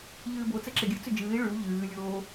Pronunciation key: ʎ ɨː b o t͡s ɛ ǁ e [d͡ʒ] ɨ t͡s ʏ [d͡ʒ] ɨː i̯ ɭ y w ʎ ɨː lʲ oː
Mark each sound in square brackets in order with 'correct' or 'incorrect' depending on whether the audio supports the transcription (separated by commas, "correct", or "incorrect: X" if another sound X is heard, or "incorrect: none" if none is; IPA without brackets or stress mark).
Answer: incorrect: ɡʲ, correct